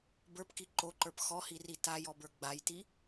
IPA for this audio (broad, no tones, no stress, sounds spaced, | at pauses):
b ə˞ p k i ǃ o ǃ ə˞ p x ɔ h i r i t a j ɔ b ə˞ ɡ͡b a j t i